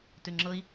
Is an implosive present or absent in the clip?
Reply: absent